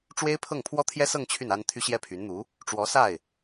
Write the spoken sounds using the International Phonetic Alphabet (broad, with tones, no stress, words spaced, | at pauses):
ʈ͡ʂwe˥ɪ̯pʰɤ˥˩ŋ pʰwɔ˥t̪ʰjɛ˥sɤ˥˧ŋ t͡ɕʰy˥˩na˥n t̪ʰy˥ɕjɛ˥˩pʰy˧˥nn̪u˧˥ | ʈ͡ʂwɔ˧˥sa˥˩ɪ̯